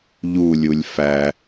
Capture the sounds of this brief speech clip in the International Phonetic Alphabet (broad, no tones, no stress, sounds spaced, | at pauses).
ʎ u lʲ u lʲ f æ